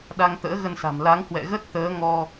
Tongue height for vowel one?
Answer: low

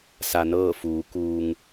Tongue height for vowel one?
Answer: low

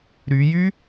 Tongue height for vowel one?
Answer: high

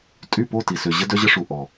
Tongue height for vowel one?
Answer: high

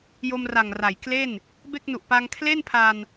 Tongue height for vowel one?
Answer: mid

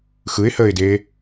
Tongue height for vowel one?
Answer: high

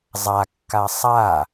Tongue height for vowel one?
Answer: low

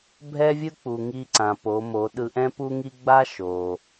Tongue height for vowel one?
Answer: mid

